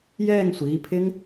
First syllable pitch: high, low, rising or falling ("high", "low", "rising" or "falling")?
falling